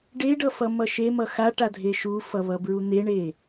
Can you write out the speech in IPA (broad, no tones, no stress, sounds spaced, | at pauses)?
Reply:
ɖ e ɖ ʌ f ʌ m ʌ ʃ e m ʌ x a ʈ a dʱ e ʃ u f ʌ β ʌ b ɹ u n̪ e ɳ e